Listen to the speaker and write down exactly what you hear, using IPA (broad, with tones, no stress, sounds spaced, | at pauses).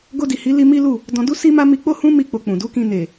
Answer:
ɡ o˧ d i˨ h i˨˦ l i˦ m i˦ l u˦˨ | d ɔ̃˧ d u˦ s i˦ m a˦ m i˧ k͡p o˦ h ũ˦ m i˦˨ k͡p o˧ k͡p ũ˨ d u˨˦ k ĩ˧ n e˨